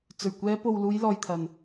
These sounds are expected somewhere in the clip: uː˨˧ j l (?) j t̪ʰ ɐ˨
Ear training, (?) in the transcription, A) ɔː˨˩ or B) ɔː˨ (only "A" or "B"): B